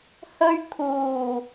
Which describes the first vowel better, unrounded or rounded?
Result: rounded